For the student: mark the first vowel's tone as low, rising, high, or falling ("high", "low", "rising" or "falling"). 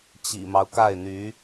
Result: low